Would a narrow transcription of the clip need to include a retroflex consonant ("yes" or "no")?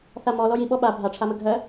yes